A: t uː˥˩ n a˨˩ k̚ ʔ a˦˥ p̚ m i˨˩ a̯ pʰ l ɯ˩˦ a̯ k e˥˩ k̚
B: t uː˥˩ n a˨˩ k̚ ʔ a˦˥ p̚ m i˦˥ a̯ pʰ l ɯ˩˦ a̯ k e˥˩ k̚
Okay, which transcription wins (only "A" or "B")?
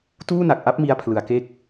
B